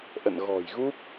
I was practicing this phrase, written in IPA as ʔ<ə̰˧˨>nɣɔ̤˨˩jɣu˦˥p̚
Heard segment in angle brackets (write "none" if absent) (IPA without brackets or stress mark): ə̰˧˨